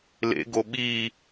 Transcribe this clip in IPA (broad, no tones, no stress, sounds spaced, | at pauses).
l ḛ ɡ o ɓ i